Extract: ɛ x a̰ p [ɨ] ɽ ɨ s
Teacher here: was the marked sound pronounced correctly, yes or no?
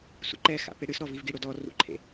no